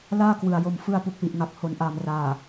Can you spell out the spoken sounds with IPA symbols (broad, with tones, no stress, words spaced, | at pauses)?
laː˥˩ kwɯ˨˩a̯ jo˨˩mfɯ˧a̯ pu˨˩k̚wi˨˩ʔŋa˨˩k̚ ho˩˦nʔaː˨˩m raː˨˩